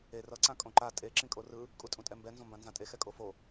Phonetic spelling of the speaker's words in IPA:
e r ʌ ǀ ã kʼ õ ǃ a tʼ e ǁ ĩ kʼ o r ɯ | kʼ u tʼ ũ tʼ ɛ m b ɛ n z õ m b ã n z ã tʼ e x ɛ kʼ o f o

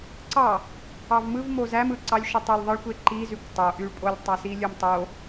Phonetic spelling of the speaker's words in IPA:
ǀ ɑ | ɑ v m ɯ v m o z æ m ɯ ǀ ɑ lʲ ʃ o tˤ e lʲ ðˤ ɯ ɭ kʷ e ǃ i z y kʷ tˤ o ʔ y ɭ pʼ o lʲ tˤ ɑ s i lʲ ø m tˤ o

